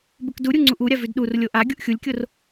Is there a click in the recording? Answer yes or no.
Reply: yes